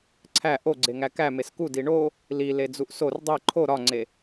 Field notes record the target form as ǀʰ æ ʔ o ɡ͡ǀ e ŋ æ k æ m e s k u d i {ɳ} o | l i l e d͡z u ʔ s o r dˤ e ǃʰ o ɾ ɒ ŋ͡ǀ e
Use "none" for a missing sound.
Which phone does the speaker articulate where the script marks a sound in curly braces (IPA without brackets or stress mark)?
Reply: ɳ